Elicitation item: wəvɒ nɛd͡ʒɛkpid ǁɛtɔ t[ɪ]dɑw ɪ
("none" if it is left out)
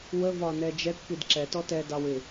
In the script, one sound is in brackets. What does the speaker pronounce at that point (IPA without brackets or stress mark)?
ɛ